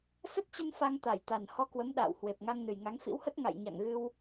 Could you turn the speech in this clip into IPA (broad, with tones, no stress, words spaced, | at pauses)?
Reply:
sə˦˥t̚t͡ɕə˧n fa˧ŋt̪a˧˩jt̪a˨˩n hɔ˧kwə˨˦m ɗa̰ː˧˨w hwe˨˩p̚ŋa˧ŋnɨ˨˩jŋa˨˦ŋ fḭ˧˥whə˦˥t̚ ŋa̰˧˨jɲa̰˧˨ŋɣɨ˧w